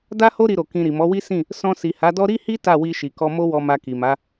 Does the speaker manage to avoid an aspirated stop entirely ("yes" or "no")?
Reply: yes